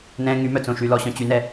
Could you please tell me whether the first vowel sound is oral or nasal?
nasal